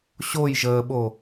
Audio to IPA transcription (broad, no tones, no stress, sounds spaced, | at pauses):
ɕ o j ʒ əː ɓ o